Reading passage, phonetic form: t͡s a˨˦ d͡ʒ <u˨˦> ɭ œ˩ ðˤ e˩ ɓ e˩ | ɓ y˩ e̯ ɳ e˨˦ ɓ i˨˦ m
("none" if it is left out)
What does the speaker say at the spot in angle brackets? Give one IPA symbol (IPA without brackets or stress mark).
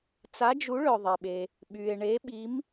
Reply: u˨˦